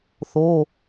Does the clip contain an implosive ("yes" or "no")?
no